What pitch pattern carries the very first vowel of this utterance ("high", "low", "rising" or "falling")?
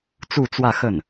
falling